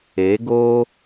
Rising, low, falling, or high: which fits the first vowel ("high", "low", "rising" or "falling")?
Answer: rising